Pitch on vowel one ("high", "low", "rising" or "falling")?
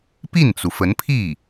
falling